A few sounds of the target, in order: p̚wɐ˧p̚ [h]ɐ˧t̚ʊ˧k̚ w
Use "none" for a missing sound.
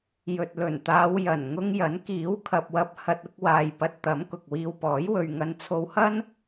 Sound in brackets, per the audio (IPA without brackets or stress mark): h